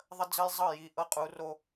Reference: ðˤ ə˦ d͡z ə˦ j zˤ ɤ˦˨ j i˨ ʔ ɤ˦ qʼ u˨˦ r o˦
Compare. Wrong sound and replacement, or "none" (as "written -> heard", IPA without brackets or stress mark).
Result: none